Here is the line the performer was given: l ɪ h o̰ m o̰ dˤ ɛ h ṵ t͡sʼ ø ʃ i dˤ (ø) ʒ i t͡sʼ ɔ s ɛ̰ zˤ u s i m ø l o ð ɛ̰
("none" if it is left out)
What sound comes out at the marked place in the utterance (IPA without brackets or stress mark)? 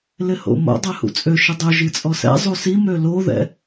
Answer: ø